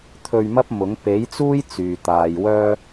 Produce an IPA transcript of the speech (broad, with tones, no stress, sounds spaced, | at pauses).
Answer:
t̪ʰ ɵ˧ ɥ m ɐ˥ p̚ m ʊ˨˥ ŋ p e˨˥ j t͡s uː˥ j t͡s yː˨ t̪ aː˨ j w œː˥